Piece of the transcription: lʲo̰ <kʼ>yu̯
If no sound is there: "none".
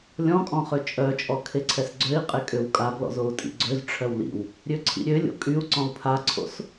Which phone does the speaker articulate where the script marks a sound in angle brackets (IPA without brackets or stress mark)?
kʼ